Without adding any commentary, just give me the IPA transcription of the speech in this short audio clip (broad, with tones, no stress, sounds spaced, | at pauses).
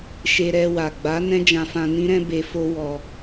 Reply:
ʃ e˧ ɾ ɛ˧ w a˨ ɡ͡b a˨˦ n ɛ̃˦ d͡ʒ ã˧ f ã˧ n ĩ˦ ɾ ɛ̃˦ b e˧ f o˦ w ɔ˧